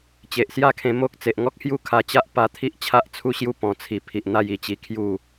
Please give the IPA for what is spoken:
t͡ɕ e˨ ʔ s j a˥˧ kʰ ẽ˧ m o˦ k̚ t͡s e˨ ʔ ŋ ɔ˦ k̚ h j u˥˧ kʰ a˧ t͡ɕ a˦ ʔ p a˧ t̪ʰ i˦ ʔ t͡ɕʰ a˦ ʔ t͡sʰ u˥˧ ɕ j u˦ p ɔ̃˨˩ t͡sʰ i˨˩ pʰ i˨ ʔ n̪ a˥˧ j i˧ t͡ɕ i˧ kʰ j u˥˧

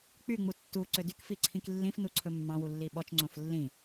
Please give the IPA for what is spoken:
k͡p y ŋ͡m u tː u ǀ ø d y k f i ǀʰ ĩ k lː ĩ f n u ǀʰ ɵ mː ɑ̃ w u lː i ɓ ɔ t͡ʃ ŋ͡ǀ õ f lː ĩ

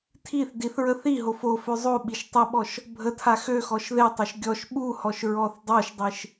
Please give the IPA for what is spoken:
tʰ i θ d i θ ɹ ə θ i ɦ o f o f ø zˤ o ɓ i ʃ tˤ ə ɓ ɔ ʃ | bʱ ə tʰ a x ø x ɔ ʃ ð e tˤ o ʃ ɡʲ ɔ ʃ ɓ u h ɔ ʃ ɹ ɔ θ dˤ o ʃ dˤ i ʃ

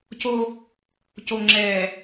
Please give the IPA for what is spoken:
c o˦ | c o˨ ŋ͡ǁ ɛː˨

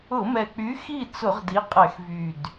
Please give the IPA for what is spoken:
ʊ˧˩˧ m ɛ˨˩ k͡p y˨˥ x i˥˨ t͡s ʊ˧˩˧ ʁ d i˨˥ qʼ ɛ˧˩˧ x v y˨˩ d

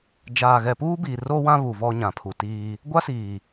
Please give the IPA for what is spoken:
d͡ʒ aː˨ ɣ ɛ˨ p uː˦ b iː˨ r o˦ w ã˦ β u˨ v ɔ˦ ɲ ã˨ pʰ u˨ t iː˦ | ɡʷ a˦ s iː˨

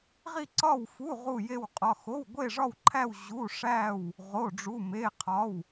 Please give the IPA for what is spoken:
ʁ i˥˧ ǀ ɒ˥˧ w f u˧˥˧ ʁ u˥˧ j e˥˧ w qʼ ɒ˧˥˧ x o˧˥˧ w ɡʷ e˥˧ ʐ ɒ˥˧ w ǃʰ æ˥˧ w ʑ u˧˥˧ ʂ æ˥˧ w | ʁ o˧˥˧ ɖ͡ʐ u˧˥˧ m e˧˥˧ qʰ ɒ˧˥˧ w

